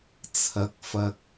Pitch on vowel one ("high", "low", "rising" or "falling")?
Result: rising